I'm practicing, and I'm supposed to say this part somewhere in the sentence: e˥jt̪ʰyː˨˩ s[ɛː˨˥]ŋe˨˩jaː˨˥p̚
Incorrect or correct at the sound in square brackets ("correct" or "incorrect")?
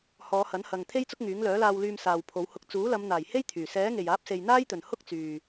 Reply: correct